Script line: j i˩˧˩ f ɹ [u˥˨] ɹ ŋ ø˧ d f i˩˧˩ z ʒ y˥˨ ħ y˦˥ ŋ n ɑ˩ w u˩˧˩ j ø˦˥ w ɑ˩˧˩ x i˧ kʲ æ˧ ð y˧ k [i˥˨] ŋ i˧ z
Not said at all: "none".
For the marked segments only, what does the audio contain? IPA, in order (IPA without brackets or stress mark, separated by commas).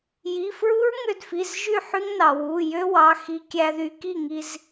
u˦˥, i˥˨